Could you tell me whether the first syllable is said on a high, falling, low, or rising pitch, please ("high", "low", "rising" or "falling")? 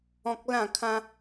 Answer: high